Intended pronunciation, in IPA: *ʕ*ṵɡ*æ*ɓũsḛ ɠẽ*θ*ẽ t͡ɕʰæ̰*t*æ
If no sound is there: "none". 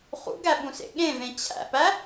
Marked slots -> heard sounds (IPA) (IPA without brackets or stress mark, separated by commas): χ, æ, v, p